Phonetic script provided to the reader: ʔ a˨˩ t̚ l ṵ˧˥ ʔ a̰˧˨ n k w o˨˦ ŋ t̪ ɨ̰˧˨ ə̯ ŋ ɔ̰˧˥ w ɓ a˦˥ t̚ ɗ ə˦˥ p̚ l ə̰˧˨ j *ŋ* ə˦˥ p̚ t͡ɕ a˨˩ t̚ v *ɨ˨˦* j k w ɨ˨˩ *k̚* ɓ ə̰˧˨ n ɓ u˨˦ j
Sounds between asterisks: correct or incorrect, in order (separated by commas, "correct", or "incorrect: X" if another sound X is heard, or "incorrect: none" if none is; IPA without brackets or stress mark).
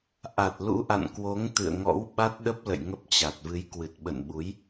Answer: correct, correct, incorrect: t̚